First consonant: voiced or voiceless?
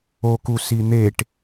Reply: voiceless